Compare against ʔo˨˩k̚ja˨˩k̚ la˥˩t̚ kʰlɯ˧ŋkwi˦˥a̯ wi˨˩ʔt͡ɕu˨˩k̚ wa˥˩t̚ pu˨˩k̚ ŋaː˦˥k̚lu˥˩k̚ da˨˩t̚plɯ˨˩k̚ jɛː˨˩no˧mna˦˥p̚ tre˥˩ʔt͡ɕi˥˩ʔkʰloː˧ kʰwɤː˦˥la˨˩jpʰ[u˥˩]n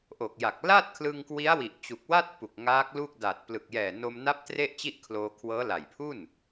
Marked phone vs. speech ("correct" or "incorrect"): correct